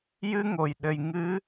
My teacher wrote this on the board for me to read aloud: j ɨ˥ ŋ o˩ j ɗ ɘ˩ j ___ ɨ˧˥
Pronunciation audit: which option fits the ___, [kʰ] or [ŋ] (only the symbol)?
ŋ